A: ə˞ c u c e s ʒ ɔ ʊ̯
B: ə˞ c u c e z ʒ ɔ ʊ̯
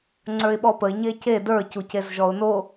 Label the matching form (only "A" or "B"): B